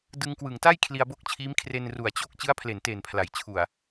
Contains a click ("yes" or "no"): no